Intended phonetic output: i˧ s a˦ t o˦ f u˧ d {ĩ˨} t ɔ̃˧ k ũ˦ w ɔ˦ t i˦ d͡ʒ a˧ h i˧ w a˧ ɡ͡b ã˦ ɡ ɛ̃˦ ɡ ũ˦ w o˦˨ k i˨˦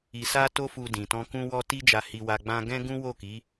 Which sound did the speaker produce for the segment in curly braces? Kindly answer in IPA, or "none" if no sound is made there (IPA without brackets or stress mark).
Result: ĩ˨